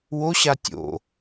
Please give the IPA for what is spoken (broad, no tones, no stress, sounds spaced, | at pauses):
w o ɕ a tʲ o̰